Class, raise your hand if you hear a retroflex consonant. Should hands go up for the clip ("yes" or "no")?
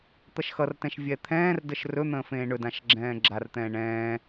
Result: yes